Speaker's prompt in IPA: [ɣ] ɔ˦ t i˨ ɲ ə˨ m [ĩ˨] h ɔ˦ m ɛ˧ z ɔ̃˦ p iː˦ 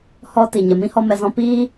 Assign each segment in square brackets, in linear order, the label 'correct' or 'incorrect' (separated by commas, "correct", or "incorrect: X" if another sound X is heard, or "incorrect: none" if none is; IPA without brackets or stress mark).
incorrect: h, incorrect: ĩ˦